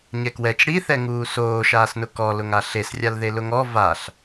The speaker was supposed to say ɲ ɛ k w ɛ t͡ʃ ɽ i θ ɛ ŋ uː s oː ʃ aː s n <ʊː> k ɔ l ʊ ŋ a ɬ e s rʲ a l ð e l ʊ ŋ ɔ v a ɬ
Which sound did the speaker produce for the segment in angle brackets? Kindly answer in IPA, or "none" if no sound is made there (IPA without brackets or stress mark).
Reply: ʊ